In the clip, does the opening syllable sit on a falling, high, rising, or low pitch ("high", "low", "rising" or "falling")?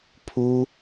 high